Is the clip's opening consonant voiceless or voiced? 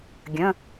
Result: voiced